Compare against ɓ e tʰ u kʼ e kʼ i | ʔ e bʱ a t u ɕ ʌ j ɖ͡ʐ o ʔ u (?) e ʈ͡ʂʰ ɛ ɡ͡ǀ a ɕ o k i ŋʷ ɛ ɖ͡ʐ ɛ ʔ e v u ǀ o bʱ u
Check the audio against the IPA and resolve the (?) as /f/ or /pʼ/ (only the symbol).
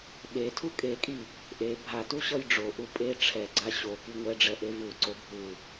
pʼ